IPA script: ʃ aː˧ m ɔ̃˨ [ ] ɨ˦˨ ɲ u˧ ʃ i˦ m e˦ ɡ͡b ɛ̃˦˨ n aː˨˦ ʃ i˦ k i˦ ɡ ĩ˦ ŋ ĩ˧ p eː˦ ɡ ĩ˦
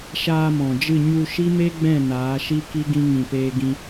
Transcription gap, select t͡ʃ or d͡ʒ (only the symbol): d͡ʒ